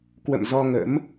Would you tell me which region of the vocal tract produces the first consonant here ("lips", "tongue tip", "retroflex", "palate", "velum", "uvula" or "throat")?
velum